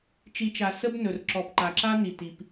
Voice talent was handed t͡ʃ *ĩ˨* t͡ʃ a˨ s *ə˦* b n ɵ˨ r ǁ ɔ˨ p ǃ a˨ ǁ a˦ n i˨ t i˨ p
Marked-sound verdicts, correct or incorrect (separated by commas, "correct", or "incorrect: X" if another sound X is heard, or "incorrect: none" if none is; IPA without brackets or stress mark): incorrect: i˨, correct